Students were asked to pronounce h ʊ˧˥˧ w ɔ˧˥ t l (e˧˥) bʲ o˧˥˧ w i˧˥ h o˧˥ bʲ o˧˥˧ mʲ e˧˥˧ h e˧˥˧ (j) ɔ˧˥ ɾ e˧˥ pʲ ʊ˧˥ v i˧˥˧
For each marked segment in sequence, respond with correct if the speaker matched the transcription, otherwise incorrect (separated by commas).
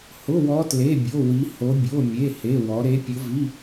incorrect, incorrect